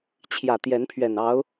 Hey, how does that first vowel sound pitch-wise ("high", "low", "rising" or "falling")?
low